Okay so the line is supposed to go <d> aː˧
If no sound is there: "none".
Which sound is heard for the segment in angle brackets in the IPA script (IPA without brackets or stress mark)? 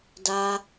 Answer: d